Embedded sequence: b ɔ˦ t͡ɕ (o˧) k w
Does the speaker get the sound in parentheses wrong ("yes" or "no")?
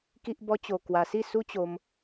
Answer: no